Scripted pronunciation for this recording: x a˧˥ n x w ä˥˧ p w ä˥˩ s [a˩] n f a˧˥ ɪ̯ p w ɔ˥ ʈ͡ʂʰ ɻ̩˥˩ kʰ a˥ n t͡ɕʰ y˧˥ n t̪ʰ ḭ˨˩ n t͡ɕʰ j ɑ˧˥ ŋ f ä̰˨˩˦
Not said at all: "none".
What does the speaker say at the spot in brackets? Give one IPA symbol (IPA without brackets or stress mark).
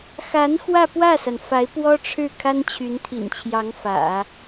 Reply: a˩